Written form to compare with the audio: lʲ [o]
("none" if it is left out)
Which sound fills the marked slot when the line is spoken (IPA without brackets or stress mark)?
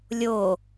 o